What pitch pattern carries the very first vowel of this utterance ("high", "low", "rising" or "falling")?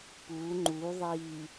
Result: rising